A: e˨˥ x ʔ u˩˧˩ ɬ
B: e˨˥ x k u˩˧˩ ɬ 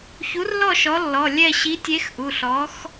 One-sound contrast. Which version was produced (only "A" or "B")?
A